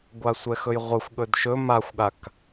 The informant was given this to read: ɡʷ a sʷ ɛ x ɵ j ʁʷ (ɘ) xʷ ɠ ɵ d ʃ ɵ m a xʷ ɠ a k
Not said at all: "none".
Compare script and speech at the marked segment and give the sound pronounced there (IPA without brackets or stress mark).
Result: ɘ